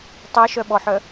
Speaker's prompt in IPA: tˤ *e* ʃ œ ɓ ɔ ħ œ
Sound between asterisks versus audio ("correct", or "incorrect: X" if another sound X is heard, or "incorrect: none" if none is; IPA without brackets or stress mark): correct